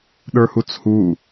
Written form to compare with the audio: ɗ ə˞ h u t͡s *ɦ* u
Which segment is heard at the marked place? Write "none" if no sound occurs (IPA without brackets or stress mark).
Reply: h